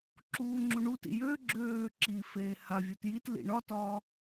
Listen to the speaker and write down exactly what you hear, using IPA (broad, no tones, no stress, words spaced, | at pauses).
ǁuːŋ͡ǁuɳutḭ jøɡ͡ǁøː ǁifeː havʲot jitlḭ ɳɒtɒː